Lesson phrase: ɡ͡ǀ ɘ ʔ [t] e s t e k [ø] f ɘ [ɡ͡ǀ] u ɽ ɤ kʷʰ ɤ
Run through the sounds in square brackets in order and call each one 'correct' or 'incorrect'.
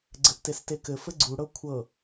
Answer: correct, incorrect, correct

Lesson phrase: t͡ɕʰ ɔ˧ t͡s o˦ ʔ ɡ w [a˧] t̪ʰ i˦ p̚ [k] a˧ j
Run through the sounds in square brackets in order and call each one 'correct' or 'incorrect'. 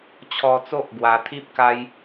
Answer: incorrect, correct

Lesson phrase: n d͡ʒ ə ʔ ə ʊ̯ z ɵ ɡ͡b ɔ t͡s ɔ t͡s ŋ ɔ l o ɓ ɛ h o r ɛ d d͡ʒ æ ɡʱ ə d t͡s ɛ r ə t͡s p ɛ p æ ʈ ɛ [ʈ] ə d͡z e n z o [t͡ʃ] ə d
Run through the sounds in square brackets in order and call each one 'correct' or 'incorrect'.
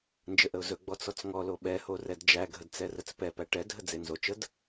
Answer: incorrect, correct

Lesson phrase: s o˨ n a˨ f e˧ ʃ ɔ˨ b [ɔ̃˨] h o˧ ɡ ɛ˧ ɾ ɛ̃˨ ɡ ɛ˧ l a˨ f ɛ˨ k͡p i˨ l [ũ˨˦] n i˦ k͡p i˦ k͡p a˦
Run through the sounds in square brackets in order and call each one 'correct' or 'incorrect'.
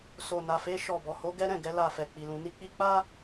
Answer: incorrect, correct

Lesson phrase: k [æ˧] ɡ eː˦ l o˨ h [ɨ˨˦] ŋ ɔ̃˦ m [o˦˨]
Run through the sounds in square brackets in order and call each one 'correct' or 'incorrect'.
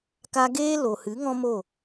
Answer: incorrect, correct, correct

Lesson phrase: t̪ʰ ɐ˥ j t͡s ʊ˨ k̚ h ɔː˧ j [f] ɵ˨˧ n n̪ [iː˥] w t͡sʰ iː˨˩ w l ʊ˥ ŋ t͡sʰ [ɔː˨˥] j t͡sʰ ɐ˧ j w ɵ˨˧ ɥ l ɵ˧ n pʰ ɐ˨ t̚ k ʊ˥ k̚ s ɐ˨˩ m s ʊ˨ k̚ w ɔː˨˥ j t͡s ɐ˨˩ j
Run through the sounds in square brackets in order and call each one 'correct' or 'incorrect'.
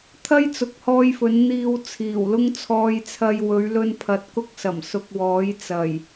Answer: correct, incorrect, incorrect

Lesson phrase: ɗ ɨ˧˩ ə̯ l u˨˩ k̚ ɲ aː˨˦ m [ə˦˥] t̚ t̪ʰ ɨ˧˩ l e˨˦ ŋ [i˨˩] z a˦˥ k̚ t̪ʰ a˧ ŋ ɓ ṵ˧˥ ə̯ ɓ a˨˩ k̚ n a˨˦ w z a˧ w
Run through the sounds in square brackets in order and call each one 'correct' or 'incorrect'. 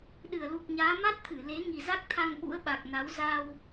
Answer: incorrect, correct

